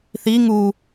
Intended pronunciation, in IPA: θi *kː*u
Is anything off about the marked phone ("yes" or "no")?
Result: yes